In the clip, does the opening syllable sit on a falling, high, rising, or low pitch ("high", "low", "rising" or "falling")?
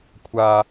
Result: high